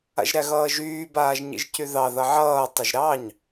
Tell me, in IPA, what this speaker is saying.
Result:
a̰ ʒ ɾ æ ɣ ʌː ʒ yː b aː ʒ ɲ ḭ ʒ c y ð ɑ ð ʌ ʕ ʌː tˤ ʌ ʒ ɾ ɑ ɲ

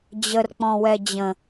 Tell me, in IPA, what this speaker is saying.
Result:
d͡ʑ ə r k͡p ɔ̃ w ɛ d͡ʑ ə̃

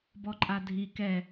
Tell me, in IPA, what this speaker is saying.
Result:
b ɔ ǃʼ a dʱ i k ɛ

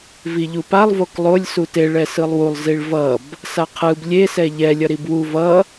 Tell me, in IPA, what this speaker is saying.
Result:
v i ʎ u p a lˠ v o k lˠ o lʲ s u t e ɭ ɛ s ɯ lˠ w u lˠ z i ɭ v ʌ b | s a qʰ ɯ b lʲ e s ɛ ʎ ɛ lʲ ʌ ɾ i b w u v ʌ

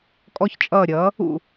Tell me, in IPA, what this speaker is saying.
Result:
kʼ ɔ˥ ç t͡ʃʼ ʌː˥˩ ɾʲ ʌː˩˥ | ṵ˥˩

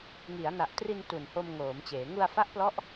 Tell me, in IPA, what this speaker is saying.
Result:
ŋ i˩˦ a̯ n a˨˩ ʔ t r i˧ n t u˨˩ n h o˧ m ŋ oː˩˦ m t͡ɕ eː˩˦ ŋ u˧ a̯ f a˦˥ ʔ p l ɔ˦˥ ʔ

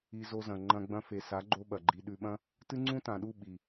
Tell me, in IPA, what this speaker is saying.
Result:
i˧ z o˧ z ɐ̃˨ ŋ͡ǃ ɐ̃˧ ɡ͡b ɐ̃˧ f e˨ s a˨˦ ɡ͡ǃ o˧ ɓ ɐ˨ ɡ͡ǃ i˧ ɗ ʉ˨ ɓ ɐ̃˧ | t ɨ˦ ŋ͡ǀ ũ˦ t ã˨ ɗ u˦˨ ɓ i˨

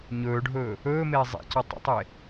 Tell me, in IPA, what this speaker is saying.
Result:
ɲ ɵː ɖʱ ɵː | ɵː m eː zˤ ḛ c ɔ tˤ ə̰ tˤ e

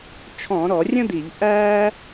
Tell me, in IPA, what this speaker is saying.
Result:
t͡ʃʰ ɔ̃˧˩˧ ɾ ɔ˧˩˧ rʲ ə̃˥ d̪ i˧˩˧ ʎ ʔ æː˥

